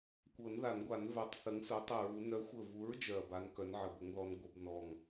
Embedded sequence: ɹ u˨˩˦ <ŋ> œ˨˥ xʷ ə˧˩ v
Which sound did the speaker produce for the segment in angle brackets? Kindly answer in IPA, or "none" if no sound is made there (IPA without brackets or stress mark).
n